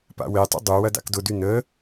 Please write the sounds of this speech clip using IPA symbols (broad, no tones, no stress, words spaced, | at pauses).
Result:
pa̰wetˤə̰ dˤu wɐda̰kdʊdy nə